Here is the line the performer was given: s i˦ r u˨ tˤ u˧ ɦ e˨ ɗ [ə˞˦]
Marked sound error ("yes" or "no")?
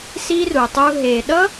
yes